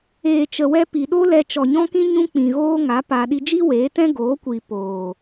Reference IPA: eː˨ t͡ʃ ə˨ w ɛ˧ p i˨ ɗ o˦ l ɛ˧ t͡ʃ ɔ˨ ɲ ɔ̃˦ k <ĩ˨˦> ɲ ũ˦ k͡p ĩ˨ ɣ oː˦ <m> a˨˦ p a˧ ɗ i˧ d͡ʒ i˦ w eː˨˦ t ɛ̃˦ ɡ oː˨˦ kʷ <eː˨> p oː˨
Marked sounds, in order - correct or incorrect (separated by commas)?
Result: incorrect, incorrect, incorrect